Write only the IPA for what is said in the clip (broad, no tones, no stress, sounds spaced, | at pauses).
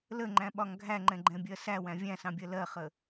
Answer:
l ə ŋ͡ǃ æ̃ ɓ ɒ ŋ ɡʱ æ ŋ͡ǃ ɛ̃ ɡ͡ǃ ɛ̃ bʲ ɜ s æ w æ̃ vʲ æ̃ s ɑ̃ bʲ ɜ l ɜ χ ə